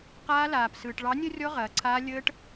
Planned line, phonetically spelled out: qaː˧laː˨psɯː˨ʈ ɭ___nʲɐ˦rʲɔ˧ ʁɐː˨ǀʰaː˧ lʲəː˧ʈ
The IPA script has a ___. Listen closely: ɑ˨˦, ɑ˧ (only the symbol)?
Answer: ɑ˨˦